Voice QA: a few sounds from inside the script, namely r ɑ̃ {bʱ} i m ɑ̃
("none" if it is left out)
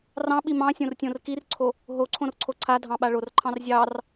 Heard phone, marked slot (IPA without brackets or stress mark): ɓ